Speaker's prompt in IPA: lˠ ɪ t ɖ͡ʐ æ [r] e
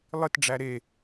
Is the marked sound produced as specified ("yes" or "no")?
no